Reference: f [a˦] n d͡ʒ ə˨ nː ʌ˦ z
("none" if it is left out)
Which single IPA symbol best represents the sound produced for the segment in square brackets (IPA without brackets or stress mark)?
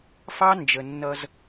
ɑ˦